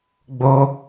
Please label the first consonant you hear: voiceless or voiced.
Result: voiced